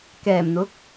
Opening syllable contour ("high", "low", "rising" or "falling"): low